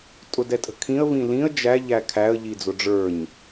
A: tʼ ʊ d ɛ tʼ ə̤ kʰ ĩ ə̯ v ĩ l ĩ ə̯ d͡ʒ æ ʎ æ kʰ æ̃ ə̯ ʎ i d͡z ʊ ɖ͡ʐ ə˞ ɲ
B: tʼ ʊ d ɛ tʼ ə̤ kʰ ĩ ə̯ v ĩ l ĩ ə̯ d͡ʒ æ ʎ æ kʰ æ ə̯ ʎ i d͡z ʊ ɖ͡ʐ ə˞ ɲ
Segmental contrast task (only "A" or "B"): B